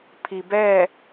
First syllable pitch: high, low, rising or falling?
low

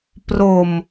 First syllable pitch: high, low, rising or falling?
low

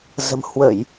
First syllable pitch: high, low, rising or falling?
low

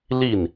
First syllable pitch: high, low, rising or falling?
falling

